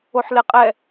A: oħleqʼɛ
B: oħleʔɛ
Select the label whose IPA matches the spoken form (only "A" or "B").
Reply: A